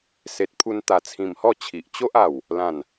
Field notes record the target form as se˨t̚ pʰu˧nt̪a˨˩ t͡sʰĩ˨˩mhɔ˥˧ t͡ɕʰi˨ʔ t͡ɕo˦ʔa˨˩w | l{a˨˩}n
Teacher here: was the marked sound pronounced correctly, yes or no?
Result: no